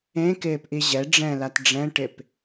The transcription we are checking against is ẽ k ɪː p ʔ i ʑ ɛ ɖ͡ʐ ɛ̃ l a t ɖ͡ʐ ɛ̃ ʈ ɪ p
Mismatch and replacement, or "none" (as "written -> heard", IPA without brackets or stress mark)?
none